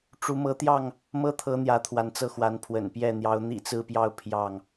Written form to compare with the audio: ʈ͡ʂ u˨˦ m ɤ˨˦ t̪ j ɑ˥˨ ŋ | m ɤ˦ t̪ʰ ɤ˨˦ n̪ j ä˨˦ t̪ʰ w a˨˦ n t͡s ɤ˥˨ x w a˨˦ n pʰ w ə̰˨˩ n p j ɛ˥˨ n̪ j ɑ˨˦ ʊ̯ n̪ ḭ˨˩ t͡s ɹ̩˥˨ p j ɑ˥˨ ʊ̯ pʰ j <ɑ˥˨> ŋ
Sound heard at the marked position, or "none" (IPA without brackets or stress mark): ɑ˥˨